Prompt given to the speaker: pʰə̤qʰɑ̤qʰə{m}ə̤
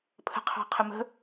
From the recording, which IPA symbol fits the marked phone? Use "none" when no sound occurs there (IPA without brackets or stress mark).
m